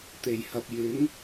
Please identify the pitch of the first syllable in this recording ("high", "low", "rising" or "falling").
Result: low